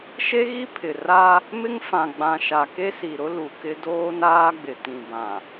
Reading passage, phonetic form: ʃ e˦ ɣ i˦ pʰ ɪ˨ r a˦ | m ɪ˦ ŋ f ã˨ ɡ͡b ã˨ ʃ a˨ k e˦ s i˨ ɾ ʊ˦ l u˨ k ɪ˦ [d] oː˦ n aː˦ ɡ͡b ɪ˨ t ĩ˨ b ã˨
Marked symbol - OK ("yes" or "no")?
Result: yes